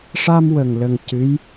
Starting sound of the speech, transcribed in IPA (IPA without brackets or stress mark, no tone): ʂ